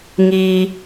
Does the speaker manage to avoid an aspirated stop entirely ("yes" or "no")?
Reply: yes